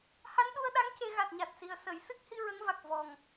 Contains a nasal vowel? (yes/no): no